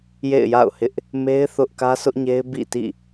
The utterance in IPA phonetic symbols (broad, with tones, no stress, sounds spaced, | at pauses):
j ḛ˦˨ ɪ̯ j a̰˦˨ ʊ̯ h ɪ˦ ʔ | m e˦ ɪ̯ θ ʊ˦ ʔ k ä˦ sʰ ʊ˦ ʔ ɲ e˦ ɪ̯ b ḭ˦˨ t ḭ˦˨